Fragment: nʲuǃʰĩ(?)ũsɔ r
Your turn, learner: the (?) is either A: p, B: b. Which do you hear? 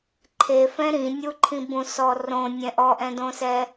B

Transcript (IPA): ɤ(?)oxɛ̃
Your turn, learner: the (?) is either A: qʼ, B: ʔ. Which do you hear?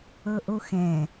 B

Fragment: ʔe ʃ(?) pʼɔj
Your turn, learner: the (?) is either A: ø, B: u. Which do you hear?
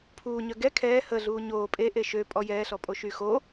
A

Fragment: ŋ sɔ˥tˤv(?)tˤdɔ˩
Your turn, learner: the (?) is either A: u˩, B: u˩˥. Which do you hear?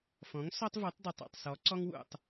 B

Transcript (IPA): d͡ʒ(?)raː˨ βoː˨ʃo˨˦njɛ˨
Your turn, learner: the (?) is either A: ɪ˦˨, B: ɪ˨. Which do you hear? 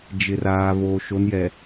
B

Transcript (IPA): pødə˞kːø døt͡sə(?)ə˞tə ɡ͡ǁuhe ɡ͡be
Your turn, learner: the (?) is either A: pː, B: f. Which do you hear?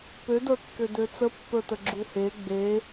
A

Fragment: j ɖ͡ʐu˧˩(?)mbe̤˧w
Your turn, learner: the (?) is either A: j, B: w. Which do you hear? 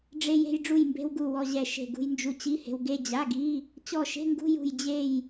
A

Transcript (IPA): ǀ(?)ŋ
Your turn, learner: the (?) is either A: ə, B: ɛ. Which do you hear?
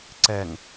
B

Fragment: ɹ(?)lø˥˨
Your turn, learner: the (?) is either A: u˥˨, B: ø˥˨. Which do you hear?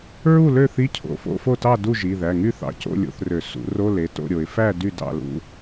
A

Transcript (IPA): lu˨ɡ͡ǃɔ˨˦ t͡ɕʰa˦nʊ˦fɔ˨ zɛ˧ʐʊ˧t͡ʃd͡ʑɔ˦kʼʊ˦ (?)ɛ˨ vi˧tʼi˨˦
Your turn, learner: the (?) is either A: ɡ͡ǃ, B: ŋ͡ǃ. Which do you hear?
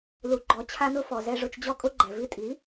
A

